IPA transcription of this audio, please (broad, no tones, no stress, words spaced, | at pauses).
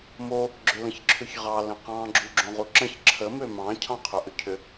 mo | ɡ͡ǁʏlə̃çǁʰʏçʁɑ lə̃qɑ̃ ɡ͡ǁuɡ͡ǁõʁuǁə̃ç ǁʰə mømɑ̃ cʰɑ̃qʰøʔʏcʰʏ